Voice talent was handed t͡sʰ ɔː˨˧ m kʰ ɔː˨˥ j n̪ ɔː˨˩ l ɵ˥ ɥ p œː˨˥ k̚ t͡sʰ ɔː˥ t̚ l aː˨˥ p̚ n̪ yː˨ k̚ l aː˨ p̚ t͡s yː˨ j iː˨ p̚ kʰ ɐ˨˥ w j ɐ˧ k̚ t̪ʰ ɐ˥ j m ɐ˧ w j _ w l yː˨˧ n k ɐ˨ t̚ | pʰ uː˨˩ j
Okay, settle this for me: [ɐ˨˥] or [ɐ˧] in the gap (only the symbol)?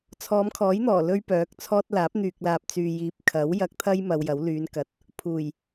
ɐ˨˥